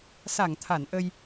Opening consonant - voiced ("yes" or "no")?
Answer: no